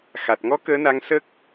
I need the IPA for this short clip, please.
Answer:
x a˨˩ t̚ ŋ ɔ˧˥ k əː˧˥ n a˧˥ ŋ s ə˦˥ k̚

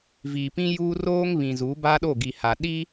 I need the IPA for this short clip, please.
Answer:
v iː˨ p ĩ˦ j uː˦ r oː˦ ŋ β ĩ˨ z u˨˦ b a˦ ɗ o˦˨ ɡ i˨ h a˨ ɗ i˦

